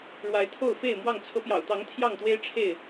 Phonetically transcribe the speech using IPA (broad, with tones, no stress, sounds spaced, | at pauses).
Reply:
ɻ w a˨˦ ɪ̯ t̪ʰ o˥˨ ʊ̯ f e˥˨ ɪ̯ m w ɑ˥˨ ŋ t͡sʰ ɤ˨˦ p j ɑ̰˨˩ ʊ̯ t̪ ɑ˨˦ ŋ t̪ʰ j ɑ˥˨ ŋ t̪ w e˦ ɪ̯ ʈ͡ʂʰ e˥˨ ɪ̯